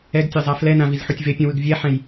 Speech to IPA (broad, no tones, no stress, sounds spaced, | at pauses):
ɛ ɡ tʲ ʌ zˤ a f l ɛ n ã v i z ħ u tʲ v e pʲ ũ w ɯ ɡ vʲ ɛ ħ ɛ̃ j